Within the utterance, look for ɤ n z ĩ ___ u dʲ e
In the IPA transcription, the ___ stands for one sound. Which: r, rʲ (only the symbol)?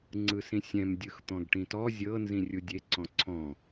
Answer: rʲ